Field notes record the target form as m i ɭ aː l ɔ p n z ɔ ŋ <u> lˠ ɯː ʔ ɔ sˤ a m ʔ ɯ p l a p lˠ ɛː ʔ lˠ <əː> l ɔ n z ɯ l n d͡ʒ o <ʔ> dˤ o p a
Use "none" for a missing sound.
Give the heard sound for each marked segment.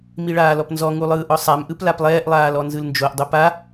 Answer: u, aː, ʔ

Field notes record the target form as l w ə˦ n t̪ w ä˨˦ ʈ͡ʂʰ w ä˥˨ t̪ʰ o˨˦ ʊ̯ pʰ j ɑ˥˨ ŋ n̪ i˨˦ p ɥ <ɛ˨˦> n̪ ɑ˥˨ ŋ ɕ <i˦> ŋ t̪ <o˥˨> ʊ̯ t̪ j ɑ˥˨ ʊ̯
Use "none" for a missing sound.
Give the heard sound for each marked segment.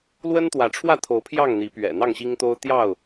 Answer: ɛ̰˨˩, i˦, o˦

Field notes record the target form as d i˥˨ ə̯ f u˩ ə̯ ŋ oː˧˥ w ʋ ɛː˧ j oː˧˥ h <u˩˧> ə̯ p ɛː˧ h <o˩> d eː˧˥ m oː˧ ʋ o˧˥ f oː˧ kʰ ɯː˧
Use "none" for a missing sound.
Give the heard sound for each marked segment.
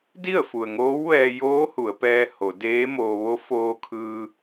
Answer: u˩˧, o˩˧

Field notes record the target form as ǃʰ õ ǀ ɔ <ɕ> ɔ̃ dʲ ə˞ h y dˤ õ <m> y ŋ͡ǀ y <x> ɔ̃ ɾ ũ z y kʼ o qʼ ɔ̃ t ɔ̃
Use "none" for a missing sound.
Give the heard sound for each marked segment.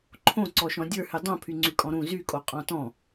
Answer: ʃ, pʰ, kʼ

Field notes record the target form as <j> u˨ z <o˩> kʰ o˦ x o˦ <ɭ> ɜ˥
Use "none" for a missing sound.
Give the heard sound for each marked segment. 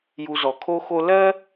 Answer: j, ɔ˩, l

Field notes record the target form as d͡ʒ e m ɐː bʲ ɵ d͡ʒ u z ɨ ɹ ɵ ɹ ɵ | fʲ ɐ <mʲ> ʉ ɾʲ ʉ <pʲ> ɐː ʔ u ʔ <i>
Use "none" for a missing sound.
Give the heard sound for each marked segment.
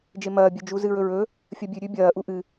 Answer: bʲ, bʲ, ɨ

